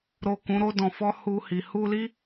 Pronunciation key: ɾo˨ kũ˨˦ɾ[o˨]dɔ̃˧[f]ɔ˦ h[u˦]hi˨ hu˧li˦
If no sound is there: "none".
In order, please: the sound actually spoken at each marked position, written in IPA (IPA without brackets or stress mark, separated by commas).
o˦, f, u˧